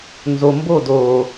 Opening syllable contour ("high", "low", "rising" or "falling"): low